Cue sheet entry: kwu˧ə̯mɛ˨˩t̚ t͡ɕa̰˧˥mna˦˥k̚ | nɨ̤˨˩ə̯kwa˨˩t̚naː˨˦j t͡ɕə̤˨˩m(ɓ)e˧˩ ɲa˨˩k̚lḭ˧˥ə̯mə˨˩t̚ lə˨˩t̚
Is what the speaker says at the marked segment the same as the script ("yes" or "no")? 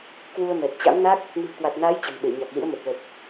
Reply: yes